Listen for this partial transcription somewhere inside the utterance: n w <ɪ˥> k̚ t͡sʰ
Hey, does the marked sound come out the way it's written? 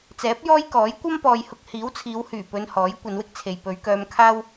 yes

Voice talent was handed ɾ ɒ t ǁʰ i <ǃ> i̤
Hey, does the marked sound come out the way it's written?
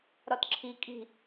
no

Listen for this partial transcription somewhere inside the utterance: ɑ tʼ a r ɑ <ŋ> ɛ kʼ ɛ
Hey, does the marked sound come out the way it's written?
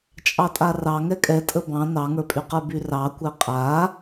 yes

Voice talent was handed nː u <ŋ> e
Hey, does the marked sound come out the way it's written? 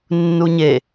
no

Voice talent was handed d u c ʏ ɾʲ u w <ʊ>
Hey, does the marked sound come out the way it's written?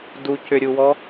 no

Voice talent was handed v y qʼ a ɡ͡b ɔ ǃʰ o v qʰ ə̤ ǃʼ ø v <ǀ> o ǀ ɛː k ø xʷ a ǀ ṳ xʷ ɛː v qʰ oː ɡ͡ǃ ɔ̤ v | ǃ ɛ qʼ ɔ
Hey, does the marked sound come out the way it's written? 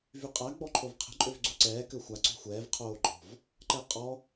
no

